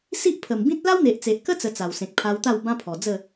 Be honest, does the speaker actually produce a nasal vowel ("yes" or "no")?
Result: yes